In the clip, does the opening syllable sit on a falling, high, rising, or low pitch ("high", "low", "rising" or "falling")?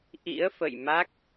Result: rising